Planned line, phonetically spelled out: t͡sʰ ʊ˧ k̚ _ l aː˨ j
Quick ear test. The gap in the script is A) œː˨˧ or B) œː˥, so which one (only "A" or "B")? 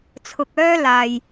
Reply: B